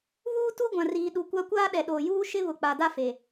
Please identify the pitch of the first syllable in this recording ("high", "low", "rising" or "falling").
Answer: high